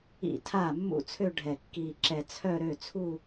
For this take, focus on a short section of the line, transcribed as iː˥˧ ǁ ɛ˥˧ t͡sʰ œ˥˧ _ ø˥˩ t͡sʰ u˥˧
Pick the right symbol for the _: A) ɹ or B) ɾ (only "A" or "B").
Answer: B